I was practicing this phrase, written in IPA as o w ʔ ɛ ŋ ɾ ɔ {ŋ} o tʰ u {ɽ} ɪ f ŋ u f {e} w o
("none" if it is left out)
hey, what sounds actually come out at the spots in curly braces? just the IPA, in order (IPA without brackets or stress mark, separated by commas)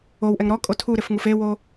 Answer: kʼ, ɾ, e